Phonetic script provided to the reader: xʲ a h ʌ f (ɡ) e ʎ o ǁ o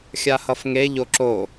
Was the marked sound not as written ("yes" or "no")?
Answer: yes